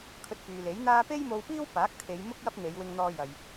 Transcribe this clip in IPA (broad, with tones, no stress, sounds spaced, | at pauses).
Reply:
kʰ ɵ˧ t̚ f yː˨ l e˨˥ j n̪ aː˥ p e˥ j m o˧ w p iː˥ w p aː˨˥ k̚ t̪ʰ e˨˧ j m ʊ˥ k̚ j ɐ˥ p̚ n̪ e˨˧ j w ɪ˧ ŋ n̪ ɔː˧ j ɐ˨ j